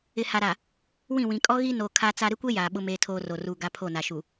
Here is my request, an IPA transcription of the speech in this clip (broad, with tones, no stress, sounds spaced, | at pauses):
ɪ˨ h a˨ ɾ a˨ | w ĩ˦˨ w ĩ˨ kʼ ɔ˦ ɣ i˦ n o˨ kʰ a˦ t͡s a˦ ɾ ɪ˦ kʷ e˦ j aː˨ ɓ ʊ˦ m eː˦ tʰ oː˦ r oː˨ r uː˦ ɡ a˦ pʰ o˦˨ n a˨ ʃ u˨